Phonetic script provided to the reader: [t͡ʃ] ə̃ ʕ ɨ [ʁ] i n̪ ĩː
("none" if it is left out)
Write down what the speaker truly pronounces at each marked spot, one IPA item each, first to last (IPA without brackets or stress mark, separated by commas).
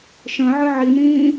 ʃ, ʕ